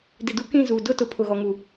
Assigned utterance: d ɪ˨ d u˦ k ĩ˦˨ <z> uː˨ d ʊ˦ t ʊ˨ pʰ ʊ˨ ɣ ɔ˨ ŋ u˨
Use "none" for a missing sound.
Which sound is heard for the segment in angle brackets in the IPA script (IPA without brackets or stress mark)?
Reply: z